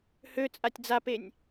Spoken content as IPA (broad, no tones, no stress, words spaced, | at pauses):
hø t͡sʼatʲd͡zapenʲ